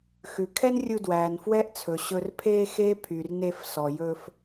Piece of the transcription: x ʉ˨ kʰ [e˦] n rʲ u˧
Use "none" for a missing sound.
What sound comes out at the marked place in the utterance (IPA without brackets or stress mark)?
ɛ˦